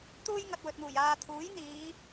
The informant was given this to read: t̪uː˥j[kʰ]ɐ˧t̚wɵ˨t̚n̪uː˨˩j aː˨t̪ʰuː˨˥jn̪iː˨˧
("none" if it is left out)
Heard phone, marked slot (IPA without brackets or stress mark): ŋ